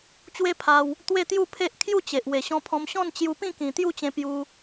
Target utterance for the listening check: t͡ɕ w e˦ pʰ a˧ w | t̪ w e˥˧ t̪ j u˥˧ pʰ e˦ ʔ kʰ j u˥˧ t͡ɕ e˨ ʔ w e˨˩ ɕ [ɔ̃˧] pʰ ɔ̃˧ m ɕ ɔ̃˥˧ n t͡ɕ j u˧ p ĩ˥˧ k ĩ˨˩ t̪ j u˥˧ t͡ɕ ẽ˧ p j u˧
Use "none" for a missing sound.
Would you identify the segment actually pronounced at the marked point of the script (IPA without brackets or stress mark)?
ɔ̃˧